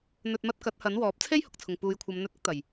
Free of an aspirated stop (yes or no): no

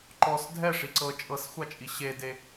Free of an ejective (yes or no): no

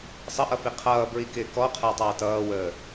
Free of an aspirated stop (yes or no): no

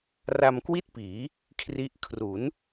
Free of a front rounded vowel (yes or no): yes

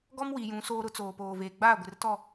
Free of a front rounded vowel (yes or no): yes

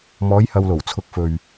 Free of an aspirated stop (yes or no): no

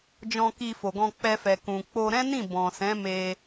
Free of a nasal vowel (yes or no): no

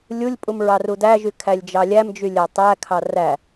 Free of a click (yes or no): yes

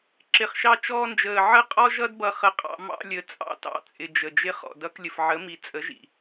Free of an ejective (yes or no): no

